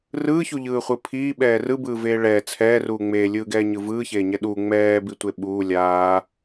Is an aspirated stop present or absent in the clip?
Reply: present